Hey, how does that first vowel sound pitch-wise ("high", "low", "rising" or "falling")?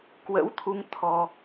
rising